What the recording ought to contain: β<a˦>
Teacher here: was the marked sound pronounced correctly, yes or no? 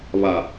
no